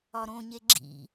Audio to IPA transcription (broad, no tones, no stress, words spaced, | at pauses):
ɒɾõɲe ɡ͡ǁḭ